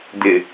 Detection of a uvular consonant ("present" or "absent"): absent